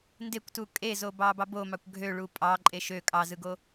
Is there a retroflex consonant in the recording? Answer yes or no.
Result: yes